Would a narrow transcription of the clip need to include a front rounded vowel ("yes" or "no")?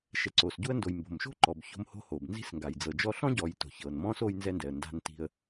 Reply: no